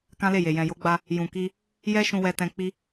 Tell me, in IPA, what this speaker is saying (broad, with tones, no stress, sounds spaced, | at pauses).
k ã˦ l e˦˨ j e˨ j ɛ̃˨ j o˨˦ ɡ͡b a˧ | j ũ˨ k i˧ | j ɛ˦ ʃ ũ˧ w ɛ˧ t ɛ̃˧ k͡p i˧